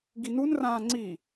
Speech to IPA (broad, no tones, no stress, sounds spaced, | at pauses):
ɡ i n u n r ãː ŋ͡ǀ i